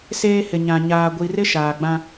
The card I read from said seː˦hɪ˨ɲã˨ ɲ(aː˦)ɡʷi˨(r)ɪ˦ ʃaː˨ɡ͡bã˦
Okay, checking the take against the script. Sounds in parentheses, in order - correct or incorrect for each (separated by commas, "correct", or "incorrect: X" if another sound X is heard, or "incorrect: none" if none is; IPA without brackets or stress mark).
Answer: incorrect: aː˨, correct